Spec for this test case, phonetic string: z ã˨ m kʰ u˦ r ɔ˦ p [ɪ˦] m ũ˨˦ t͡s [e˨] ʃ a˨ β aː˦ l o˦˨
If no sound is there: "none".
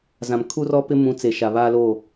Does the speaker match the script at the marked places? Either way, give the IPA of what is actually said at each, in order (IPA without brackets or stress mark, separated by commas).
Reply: ɪ˦, e˨